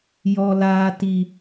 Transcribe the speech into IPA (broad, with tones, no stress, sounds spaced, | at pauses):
j ɔ˨ l aː˨ t i˨